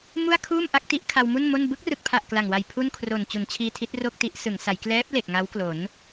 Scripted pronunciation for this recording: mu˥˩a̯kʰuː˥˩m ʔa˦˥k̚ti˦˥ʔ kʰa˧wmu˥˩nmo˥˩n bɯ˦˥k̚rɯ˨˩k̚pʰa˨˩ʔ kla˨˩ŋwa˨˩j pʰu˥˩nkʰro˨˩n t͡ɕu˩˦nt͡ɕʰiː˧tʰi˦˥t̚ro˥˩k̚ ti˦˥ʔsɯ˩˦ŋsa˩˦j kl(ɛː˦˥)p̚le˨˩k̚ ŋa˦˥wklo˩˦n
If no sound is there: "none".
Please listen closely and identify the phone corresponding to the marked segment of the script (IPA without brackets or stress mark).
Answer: ɛː˦˥